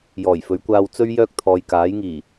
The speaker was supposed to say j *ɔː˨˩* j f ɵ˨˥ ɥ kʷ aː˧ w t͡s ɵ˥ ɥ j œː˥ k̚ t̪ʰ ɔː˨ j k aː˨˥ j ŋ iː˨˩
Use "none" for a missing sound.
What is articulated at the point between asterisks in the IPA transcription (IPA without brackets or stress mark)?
ɔː˨˩